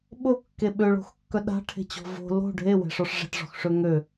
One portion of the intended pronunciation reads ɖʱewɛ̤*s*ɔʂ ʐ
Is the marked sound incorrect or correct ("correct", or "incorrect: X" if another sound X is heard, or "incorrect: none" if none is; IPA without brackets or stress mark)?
incorrect: ʂ